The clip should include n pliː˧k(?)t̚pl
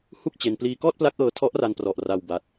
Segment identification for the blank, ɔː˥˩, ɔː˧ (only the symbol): ɔː˥˩